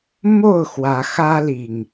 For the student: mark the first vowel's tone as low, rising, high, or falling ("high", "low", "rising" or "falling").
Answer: falling